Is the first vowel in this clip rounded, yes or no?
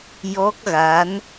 yes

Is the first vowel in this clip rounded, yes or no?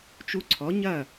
yes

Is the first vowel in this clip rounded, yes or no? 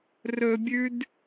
yes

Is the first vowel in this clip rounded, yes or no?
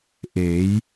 no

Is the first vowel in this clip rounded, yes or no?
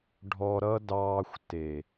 yes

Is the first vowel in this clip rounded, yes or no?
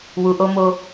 yes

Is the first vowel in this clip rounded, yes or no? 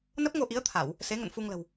no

